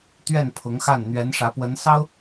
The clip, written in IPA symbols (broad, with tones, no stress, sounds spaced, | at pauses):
t̪ ɥ ɛ˥˩ n pʰ ʊ˧˥ ŋ x a˥˩ n n̪ ɥ ɛ˧˥ n ʂ ä˧˥ p w ə˧˥ n s ɑ˥ ʊ̯